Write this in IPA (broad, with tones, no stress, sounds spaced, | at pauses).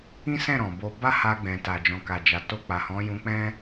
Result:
ĩ˦ s ɛ̃˦˨ ɾ ɔ̃˨ b o˧ b a˦ h a˧ ɡ͡b ɛ̃˨ t a˨ d͡ʒ ɔ̃˨ k a˨ d͡ʒ a˨ t o˧ k͡p a˨ h ɔ̃˨˦ j ũ˧ k͡p ɛ̃˦